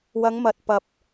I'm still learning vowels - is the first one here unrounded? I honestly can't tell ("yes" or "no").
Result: yes